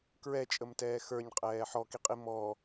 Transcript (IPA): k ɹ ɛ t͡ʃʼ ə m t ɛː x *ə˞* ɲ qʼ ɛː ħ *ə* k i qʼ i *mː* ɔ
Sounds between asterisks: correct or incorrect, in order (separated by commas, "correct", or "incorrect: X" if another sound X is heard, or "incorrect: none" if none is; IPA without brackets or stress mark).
correct, incorrect: ɔ, incorrect: m